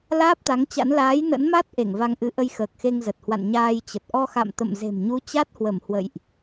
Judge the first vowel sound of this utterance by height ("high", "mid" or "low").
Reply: low